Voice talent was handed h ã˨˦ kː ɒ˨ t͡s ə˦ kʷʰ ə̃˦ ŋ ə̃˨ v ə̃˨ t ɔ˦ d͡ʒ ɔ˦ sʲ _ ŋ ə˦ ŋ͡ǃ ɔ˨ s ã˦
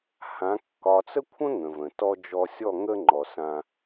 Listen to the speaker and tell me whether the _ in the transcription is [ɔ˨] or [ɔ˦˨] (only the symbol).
ɔ˦˨